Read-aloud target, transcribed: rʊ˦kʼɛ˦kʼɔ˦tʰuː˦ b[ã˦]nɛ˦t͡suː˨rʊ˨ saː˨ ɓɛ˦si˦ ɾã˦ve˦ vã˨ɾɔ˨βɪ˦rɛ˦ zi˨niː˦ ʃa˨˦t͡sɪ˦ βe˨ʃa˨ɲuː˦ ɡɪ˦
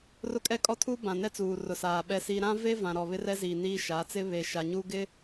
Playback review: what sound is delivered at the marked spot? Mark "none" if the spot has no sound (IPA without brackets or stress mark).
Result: ã˨